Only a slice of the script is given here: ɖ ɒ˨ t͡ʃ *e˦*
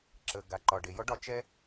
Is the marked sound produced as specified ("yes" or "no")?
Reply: no